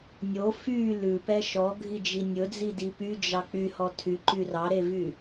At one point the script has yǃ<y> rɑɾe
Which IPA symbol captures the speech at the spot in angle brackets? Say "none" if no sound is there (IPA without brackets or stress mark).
y